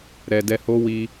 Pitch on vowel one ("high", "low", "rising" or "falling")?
low